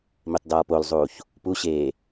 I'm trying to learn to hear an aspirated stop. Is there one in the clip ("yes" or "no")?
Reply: no